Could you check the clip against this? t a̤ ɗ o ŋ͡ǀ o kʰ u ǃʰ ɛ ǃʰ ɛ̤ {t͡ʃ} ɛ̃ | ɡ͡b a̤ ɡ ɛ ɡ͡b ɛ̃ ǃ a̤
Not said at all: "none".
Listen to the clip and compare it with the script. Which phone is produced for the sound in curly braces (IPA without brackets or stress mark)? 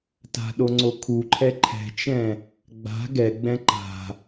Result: t͡ʃ